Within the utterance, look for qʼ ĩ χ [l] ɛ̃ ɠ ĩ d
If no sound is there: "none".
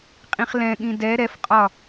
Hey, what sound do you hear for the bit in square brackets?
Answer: l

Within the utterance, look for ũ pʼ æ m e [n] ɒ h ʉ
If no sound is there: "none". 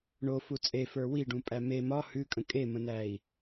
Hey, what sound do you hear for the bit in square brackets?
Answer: m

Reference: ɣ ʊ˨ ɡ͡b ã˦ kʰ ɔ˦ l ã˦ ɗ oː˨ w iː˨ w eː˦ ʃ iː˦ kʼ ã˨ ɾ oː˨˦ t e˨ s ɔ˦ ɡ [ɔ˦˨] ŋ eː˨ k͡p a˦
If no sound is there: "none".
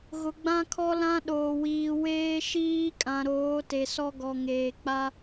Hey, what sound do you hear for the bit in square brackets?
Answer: ɔ˨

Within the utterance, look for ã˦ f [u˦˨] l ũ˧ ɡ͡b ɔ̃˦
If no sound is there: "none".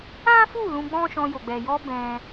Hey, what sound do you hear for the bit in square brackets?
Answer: u˦˨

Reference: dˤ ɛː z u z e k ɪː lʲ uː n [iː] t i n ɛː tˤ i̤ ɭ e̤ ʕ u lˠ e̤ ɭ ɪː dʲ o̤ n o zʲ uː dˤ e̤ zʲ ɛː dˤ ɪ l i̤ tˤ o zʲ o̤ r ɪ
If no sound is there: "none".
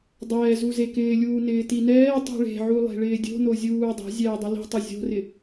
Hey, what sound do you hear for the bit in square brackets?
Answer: ɪː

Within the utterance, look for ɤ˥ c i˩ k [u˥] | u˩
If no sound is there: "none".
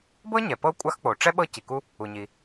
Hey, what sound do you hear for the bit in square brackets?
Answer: u˥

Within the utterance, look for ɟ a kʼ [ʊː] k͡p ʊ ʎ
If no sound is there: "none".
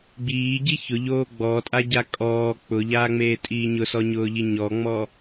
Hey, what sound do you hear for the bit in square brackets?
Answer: ɔː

